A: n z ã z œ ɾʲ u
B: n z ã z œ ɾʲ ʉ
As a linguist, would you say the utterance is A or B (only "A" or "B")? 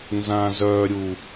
A